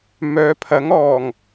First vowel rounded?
yes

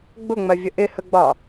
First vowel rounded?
yes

